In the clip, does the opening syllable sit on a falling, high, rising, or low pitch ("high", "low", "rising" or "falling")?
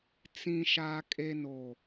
low